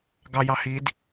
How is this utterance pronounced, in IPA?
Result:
ɡɑjɑ hid

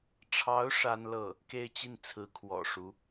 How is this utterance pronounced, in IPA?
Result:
ʈ͡ʂʰɑ˧˥ʊ̯ ʂa˥nlɤ˥˩ | ke˥˧ɪ̯t͡ɕi˥˩n t͡sʰɹ̩˧˥kʰwɔ̰˨˩ʂu˧˥

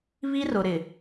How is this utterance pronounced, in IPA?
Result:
βi˦rʊ˨ɾɪ˨

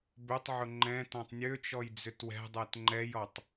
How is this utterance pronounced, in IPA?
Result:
bʏtˤʕʊ ŋ͡ǃɛ̃ tɔ̃tˤnʲøt͡ʃɔj d͡zʏtwɛ̤dˤɛt ŋ͡ǃɛjɔtˤ

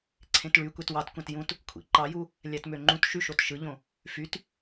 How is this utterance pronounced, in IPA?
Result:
ǀʰẽtɭy kʷetwɑtkʷæ̃t jũt | kʷʰḭǃɑju | lʲætmøŋ͡ǃũt ʃyʃotʃɯʎõ | fyt

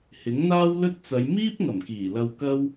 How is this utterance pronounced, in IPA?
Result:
hɪ˨˥ŋn̪aː˥wlɵ˥t̚t͡sɐ˨˧j miː˥p̚ ŋɐ˨˩mkiː˨˩lɐ˧wkɐ˥w

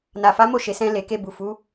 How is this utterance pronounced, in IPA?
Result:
na˨fa˨˦ mo˦˨ʃe˨sɛ̃˧ le˨ke˧ bu˨ fu˨˦

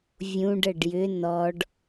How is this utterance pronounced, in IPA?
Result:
vʲũɖəɖ jʏ nɔɖ

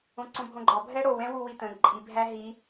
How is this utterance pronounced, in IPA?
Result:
õǀõbʱõɡ͡ǃɒ bʱɛɽow ɛ̃wuwitə̃ ǃʼi bʱæɦi

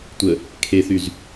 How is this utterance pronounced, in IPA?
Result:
tʷə | kʰeθyz

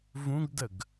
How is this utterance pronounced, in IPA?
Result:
vũɡdəɡ

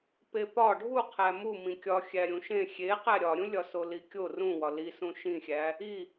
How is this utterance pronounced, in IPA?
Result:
pepɒ ɖʱu qʰæmu mĩkʲɒ xʲæɾʲũʃẽ xʲe qæɾʲɒɾʲũ lʲɒsolikʲo rũwɒ lisũ ʃĩxʲæ | i

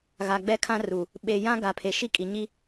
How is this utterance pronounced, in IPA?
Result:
ɣa˨ɡ͡bɛ˦kʰã˦ru˨ | ɓe˨jã˦ ɡa˨pʰe˨ ʃi˦kʼi˨ ɲi˦

